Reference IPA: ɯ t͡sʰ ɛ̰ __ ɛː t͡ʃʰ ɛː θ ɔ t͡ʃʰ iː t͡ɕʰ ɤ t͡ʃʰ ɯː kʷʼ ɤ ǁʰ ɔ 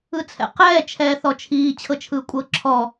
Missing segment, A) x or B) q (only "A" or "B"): B